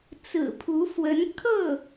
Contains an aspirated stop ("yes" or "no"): yes